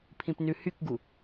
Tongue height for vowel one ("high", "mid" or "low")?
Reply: high